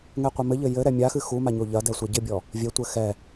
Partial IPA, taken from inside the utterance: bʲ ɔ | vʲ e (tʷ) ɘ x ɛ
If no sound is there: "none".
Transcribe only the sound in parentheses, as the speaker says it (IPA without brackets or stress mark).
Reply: tʷ